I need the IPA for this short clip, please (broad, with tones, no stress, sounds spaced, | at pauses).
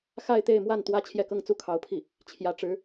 x a˥˧ ɪ̯ t̪ e˥˧ ɪ̯ m w a˥˩ n t̪ w ä˥ t͡ɕʰ j ɛ˥˧ k ɤ˥˧ ŋ t͡s u˥˩ kʰ ɑ˧˥ ʊ̯ pʰ i˥˩ | t͡ɕʰ j ä˧˥ ʈ͡ʂ ɻ̩˧˥